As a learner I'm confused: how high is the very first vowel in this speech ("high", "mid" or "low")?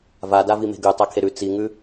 low